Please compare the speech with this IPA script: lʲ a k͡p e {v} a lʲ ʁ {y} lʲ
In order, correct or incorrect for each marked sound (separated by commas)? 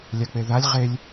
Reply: incorrect, incorrect